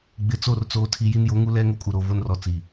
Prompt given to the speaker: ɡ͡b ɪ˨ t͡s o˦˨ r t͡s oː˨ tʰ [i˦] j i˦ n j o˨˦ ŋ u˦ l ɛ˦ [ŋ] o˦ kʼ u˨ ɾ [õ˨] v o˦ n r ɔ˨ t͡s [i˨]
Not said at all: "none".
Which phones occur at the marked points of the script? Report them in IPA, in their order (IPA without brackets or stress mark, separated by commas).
i˨, ŋ, o˨, i˨